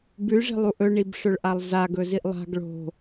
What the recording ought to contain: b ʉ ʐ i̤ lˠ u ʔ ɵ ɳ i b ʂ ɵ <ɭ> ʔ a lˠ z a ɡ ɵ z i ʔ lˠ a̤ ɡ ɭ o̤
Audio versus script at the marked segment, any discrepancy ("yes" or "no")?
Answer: no